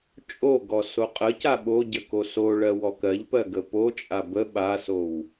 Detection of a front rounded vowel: absent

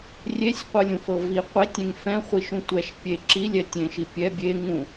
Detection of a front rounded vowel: absent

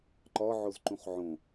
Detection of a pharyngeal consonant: present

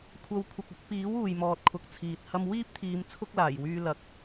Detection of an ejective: absent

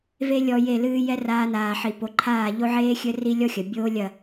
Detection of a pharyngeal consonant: present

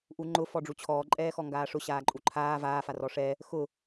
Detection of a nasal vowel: absent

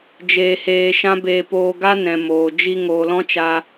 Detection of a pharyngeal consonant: absent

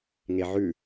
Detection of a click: absent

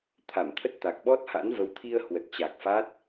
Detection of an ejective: absent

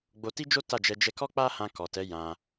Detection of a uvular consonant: absent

